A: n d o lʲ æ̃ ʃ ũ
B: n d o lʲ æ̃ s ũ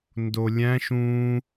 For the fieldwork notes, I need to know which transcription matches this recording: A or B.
A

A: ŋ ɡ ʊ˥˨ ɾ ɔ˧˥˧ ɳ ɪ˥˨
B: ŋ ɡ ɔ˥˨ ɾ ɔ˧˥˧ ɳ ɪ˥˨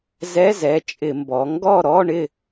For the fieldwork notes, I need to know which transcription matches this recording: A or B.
B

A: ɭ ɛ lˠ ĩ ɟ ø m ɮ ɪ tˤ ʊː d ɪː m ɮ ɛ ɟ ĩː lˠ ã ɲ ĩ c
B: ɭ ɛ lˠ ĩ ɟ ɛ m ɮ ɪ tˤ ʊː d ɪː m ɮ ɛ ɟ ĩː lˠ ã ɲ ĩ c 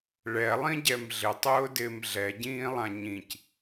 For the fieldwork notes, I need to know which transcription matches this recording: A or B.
B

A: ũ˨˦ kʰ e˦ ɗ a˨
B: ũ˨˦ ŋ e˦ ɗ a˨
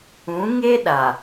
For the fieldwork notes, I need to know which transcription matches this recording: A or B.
B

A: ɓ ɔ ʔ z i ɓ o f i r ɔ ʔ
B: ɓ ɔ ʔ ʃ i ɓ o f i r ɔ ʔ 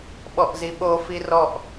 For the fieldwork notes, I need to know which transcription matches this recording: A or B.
A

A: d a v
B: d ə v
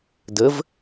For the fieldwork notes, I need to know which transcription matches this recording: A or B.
B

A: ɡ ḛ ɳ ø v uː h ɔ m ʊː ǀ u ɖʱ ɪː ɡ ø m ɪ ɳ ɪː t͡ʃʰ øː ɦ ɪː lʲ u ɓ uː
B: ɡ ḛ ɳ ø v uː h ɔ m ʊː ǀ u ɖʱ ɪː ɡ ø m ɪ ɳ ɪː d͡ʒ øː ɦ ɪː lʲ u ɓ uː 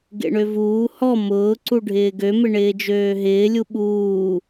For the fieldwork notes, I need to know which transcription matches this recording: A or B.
B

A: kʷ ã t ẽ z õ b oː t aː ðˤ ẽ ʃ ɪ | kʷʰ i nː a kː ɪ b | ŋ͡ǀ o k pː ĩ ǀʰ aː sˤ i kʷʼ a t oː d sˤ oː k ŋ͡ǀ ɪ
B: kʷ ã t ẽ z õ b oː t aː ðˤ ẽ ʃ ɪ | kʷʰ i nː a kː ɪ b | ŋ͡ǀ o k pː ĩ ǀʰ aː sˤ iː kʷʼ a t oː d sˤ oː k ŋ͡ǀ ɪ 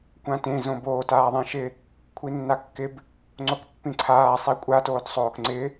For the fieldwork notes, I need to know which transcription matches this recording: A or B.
A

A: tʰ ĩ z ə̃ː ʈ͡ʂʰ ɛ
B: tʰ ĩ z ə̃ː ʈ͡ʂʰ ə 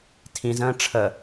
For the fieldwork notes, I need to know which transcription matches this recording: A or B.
B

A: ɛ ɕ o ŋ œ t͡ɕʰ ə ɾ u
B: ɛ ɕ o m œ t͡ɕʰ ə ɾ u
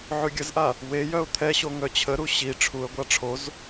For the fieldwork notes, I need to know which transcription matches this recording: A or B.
A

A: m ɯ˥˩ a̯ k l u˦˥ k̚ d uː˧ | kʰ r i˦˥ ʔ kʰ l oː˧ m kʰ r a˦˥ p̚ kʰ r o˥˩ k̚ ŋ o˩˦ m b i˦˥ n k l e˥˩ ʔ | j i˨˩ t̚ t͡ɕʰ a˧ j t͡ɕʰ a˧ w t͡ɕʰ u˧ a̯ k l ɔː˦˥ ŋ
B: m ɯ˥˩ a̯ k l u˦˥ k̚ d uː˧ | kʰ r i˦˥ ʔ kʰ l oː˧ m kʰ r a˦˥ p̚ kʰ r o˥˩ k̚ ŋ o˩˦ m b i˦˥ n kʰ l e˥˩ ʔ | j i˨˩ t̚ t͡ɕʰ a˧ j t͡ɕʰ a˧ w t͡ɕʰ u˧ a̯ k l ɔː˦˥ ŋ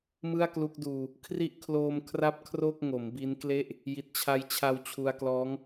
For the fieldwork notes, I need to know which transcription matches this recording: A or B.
A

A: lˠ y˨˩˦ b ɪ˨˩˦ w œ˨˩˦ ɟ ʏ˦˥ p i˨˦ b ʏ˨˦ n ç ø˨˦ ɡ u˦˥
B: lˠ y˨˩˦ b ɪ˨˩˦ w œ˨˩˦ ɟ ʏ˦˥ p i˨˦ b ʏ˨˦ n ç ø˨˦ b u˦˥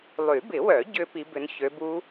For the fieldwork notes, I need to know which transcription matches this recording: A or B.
B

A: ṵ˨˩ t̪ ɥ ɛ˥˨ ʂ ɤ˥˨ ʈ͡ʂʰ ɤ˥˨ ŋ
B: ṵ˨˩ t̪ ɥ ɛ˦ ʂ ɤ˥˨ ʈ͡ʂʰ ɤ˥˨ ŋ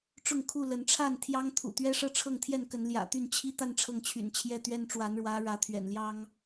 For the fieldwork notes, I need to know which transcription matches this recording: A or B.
B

